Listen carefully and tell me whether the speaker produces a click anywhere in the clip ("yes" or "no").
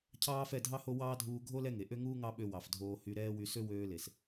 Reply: no